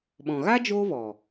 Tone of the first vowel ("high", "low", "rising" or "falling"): low